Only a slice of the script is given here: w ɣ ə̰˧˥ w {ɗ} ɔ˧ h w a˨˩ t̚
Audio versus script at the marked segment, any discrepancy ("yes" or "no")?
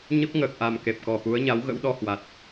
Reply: no